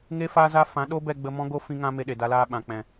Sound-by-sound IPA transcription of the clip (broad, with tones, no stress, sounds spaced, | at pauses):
ŋ e˦ f a˦ z a˦ f ã˨˦ ɗ o˦ b ɛ˧ ɡ͡b ə˧ m ɔ̃˦ ɡ o˦ f ĩ˦ ŋ ã˦ m e˧ ɗ e˨ d a˧ l aː˧ ɓ ã˨ k͡p ɛ̃˨